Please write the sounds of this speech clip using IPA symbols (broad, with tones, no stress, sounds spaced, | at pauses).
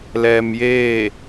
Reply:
l ɛː˧ m j eː˥˨